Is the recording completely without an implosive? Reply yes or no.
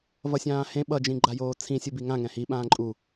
no